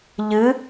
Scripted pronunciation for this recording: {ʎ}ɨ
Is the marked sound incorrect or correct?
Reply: correct